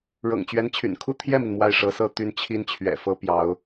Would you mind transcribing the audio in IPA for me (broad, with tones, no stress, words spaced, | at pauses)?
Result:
ɻɤ̰˨˩ŋt͡ɕɥɛ˧˥nt͡ɕʰy̰˨˩n kʰu˥˧t̪ʰjɛ˥˩mi˩n mwa˥˩ɪ̯ʂɤ˧˥sɤ˥˧ t̪y˥˩nt͡ɕʰi˥n t͡ɕʰɥɛ̰˨˩ fɤ˥pjɑ˧˥ʊ̯